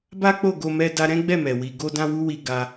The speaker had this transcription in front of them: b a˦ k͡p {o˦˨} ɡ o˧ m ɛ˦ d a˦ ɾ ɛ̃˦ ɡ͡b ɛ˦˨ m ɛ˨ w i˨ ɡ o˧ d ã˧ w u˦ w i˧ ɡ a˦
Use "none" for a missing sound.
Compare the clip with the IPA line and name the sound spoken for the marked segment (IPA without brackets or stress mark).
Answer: o˦˨